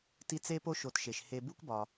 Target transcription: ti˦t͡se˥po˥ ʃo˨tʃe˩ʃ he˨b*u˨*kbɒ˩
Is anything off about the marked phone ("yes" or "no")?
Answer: yes